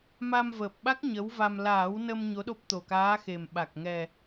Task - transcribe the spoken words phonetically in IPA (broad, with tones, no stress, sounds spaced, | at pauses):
m a˧ m v əː˨˩ p̚ ɓ a˦˥ k̚ ɲ ə˧˥ w v a˧ m l aː˨˩˦ w n ə˧ m ɲ o˧˥ ɗ o˦˥ p̚ t̪ o˨˩ k aː˧˥ x e˨˩ m ɓ a˨˩ k̚ ŋ ɛ˨˩